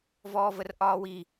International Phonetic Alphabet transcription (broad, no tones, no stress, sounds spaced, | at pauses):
v ɔː v ə r ʔ ɒː w i